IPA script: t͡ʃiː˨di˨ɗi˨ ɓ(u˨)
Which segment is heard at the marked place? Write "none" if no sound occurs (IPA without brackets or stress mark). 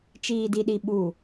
u˨